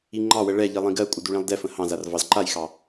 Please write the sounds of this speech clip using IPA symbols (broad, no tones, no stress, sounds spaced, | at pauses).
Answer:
i ŋ͡ǃ ɑ w ə ɭ ɛ ʎ i lˠ ĩ ɡ ɜ kʷʼ ə d u ɭ ĩ lˠ d ɛ f ə̃ h ɑ̃ z a r v ɑ z ǃ a j x ɑ